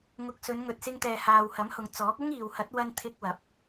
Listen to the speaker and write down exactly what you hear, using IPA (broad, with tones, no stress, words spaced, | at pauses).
ŋʊ˨k̚ sɵ˨˧nŋɵ˨t̚sɪ˧ŋt̪ɛː˨ haː˨whɐ˨˥mhʊ˨ŋ t͡sɔː˨˥k̚ ʊ˥ŋiː˨whɐ˨˥t̚ wɐ˧n t̪ʰɪ˧k̚wɐ˨˥p̚